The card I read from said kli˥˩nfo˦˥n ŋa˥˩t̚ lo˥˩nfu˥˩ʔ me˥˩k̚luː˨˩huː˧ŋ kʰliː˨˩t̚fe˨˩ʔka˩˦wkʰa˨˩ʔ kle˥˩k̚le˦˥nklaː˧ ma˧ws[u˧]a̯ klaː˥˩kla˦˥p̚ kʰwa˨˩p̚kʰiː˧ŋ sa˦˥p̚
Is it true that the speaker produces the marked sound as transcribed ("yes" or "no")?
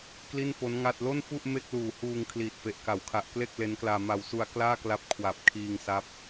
yes